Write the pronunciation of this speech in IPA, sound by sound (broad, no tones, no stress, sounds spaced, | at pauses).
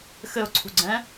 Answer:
x ɘ ʊ̯ ǀʰ ṳ ɡ͡ǀ ɛ̃